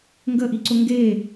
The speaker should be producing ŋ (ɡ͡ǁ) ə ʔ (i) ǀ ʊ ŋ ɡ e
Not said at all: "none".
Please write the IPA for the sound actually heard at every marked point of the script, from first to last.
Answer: ɡ, i

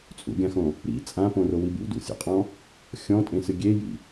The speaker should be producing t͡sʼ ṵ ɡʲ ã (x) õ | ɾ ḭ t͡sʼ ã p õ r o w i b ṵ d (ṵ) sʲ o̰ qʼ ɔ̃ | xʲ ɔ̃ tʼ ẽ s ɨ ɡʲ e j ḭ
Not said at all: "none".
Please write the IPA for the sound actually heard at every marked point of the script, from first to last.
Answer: x, ṵ

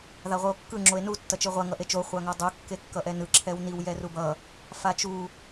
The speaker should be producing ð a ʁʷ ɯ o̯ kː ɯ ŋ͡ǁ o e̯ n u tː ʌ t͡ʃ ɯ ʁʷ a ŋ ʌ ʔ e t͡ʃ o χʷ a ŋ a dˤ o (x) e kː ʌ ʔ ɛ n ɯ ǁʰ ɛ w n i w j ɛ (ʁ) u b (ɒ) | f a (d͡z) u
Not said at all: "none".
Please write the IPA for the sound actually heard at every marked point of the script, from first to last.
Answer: kː, r, ʌ, t͡ʃ

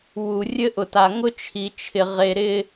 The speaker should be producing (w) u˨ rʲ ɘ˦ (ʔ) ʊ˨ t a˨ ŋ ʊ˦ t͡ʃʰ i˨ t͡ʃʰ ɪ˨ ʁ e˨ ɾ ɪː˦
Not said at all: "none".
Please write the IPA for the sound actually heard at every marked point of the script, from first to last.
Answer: w, ʔ

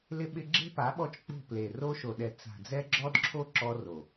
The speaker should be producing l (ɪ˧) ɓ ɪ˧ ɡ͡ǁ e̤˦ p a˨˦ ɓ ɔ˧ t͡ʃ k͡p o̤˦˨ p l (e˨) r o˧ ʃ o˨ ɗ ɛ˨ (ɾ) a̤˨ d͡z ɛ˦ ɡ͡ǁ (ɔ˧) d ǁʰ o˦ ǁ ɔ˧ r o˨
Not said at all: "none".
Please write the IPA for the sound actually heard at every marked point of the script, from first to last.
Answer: ɪ˧, e˨, t͡s, ɔ˦

